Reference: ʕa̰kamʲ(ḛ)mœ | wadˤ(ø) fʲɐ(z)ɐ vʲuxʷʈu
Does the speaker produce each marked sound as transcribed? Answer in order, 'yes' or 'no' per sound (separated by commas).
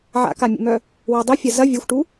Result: yes, no, yes